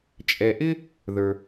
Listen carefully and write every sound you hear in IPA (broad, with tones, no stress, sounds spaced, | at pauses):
t͡ʃʼ ɛ˧ ʔ ɪ˥ | ð ə˞˧